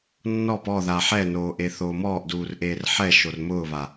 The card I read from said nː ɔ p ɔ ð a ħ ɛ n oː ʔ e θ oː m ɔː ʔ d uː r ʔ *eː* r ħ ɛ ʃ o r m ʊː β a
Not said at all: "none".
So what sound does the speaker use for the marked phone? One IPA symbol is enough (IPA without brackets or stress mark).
eː